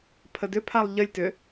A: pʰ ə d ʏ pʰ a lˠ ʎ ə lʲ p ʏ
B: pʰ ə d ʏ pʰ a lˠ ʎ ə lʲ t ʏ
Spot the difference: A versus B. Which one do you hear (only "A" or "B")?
B